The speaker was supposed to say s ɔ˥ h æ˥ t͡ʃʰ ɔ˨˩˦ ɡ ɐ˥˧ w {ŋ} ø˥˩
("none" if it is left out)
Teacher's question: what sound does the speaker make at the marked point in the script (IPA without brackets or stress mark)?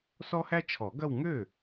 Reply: ŋ